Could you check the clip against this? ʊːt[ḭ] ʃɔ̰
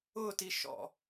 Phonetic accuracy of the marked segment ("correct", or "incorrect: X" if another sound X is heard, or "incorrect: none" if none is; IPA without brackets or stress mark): incorrect: i